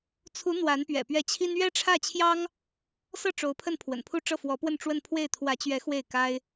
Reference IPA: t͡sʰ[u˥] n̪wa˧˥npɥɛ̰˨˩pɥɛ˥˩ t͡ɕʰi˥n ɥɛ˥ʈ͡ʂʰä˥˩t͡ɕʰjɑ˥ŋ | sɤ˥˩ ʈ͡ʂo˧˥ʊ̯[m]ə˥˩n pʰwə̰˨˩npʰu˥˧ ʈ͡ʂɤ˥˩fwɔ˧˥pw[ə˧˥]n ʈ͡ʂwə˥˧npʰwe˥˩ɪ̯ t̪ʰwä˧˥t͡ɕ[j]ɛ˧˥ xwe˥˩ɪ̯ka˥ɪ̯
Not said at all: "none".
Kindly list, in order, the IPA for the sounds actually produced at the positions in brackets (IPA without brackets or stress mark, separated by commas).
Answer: u˧˥, pʰ, ə˥˧, ɥ